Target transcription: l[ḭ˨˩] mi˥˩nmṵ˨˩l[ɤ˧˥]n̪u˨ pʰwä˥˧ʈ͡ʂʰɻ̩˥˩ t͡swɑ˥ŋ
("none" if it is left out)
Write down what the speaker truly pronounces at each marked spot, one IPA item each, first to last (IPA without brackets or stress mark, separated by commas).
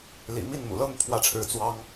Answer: ḭ˨˩, ɤ˥